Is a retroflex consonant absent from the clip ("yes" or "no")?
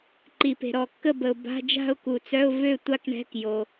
no